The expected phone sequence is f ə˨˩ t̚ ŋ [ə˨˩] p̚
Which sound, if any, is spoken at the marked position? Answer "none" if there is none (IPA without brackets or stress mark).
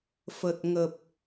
ə˨˩